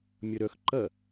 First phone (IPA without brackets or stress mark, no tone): mʲ